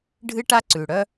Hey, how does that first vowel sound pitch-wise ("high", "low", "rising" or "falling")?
high